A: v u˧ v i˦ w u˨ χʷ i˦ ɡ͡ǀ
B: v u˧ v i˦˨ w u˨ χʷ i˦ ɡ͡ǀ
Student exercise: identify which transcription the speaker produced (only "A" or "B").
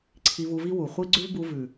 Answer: A